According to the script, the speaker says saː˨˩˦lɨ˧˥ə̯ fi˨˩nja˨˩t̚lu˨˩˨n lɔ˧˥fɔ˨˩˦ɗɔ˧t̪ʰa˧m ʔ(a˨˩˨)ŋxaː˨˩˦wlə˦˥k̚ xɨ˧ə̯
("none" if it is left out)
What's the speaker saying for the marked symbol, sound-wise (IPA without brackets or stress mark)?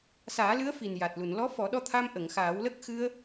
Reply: ə˨˩˨